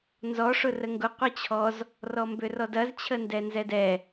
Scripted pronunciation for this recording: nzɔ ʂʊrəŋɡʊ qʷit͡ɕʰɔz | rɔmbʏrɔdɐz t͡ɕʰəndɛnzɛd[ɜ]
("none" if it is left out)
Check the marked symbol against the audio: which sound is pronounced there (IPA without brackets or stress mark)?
ɛ